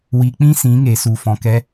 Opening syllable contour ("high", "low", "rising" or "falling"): low